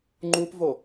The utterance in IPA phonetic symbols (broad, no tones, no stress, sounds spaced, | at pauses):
ŋ͡ǃ u p v o